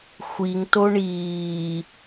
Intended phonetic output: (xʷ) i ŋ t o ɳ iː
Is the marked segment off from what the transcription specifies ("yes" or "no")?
no